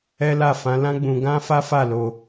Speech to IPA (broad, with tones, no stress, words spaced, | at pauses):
ɛ˦la˦˨ fã˨˦lã˦ ɡ͡bũ˧ ɡã˦fa˦fa˦˨ lo˧